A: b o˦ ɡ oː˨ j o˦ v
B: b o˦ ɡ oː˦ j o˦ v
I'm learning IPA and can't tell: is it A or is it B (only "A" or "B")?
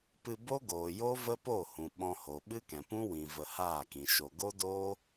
A